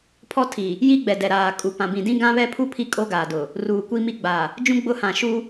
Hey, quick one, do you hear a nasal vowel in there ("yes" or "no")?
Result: yes